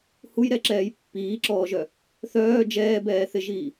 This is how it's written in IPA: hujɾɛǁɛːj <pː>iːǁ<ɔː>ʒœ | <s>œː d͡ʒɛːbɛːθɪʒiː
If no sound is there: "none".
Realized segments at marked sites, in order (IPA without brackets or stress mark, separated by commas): pː, ɔː, θ